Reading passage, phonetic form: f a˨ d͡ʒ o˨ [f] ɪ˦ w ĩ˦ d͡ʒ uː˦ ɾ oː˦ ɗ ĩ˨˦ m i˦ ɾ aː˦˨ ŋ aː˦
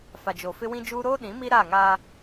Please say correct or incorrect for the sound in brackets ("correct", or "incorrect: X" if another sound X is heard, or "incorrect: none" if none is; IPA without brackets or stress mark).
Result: correct